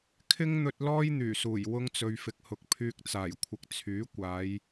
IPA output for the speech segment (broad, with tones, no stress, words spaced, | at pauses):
kʰɪ˥ŋn̪ɵ˧t̚ lɔː˥jn̪yː˨˩suː˨˩j wʊ˧ŋt͡sɵ˨ɥfɪ˨k̚hʊ˨k̚ pʰyː˧k̚t͡saː˨˩jkʷʰɪ˨k̚ t͡sʰyː˨˥kʷaː˨˧j